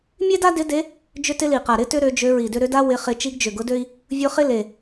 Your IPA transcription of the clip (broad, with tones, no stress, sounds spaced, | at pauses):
mʲ e˥ d a˥ d ɪ˧˥ d e˧˥ | d͡ʒ ʏ˥ t ɪ˥ l i˨˩ q a˨˩ ɾ ɪ˥ t ʏ˥ ɾ ø˧˥ d͡ʒ ø˧˥ ɹ i˨˩ d ʏ˥ ɾ ʏ˧˥ d a˥ w ɪ˧˥ χ ɪ˧˥ t͡ʃ i˧˥ ɡ d͡ʒ ʏ˨˩ ɡ ʊ˧˥ d ø˥ i̯ | vʲ ʊ˧˥ χ ɪ˥ l e˨˩